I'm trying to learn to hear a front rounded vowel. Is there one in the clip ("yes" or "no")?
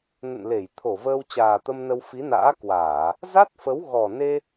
no